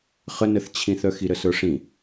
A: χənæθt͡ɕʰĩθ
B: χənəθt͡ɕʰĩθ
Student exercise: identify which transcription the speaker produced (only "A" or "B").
B